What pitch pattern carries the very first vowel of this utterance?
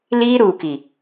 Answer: high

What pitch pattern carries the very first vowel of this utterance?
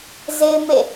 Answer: high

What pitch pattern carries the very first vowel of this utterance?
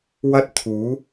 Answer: high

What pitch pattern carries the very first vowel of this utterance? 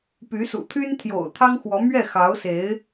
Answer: rising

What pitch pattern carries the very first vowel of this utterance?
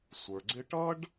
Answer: low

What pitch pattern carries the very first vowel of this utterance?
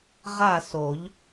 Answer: falling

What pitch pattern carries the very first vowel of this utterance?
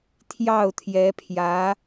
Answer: falling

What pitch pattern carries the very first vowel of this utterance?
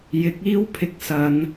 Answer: rising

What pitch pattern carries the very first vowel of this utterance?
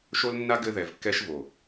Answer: high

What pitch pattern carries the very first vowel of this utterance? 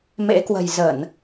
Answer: rising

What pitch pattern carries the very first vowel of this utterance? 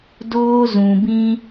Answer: high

